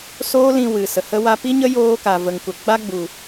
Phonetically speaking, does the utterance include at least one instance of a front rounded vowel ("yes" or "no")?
no